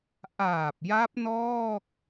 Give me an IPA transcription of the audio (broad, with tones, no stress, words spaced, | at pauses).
ʔaː˨˩p̚ja˦˥p̚ nɔː˥˩k̚